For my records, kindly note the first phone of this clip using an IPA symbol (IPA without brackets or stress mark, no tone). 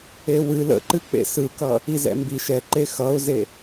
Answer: e